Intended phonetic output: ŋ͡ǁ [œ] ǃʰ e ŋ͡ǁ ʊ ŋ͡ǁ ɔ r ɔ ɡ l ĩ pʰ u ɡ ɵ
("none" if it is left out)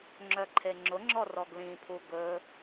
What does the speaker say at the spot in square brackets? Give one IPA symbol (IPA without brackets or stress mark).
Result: œ